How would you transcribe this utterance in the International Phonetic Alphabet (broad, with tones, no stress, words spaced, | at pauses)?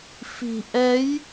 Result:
fi̤˨˩ ʔɛ˨˦j